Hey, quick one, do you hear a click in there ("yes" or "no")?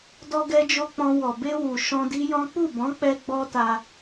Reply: no